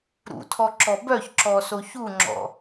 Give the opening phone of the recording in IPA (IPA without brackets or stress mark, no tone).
ɾ